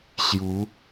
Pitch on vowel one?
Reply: rising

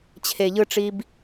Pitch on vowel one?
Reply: low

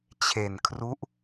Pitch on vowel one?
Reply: low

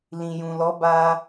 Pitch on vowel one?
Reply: low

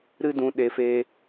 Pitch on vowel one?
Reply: high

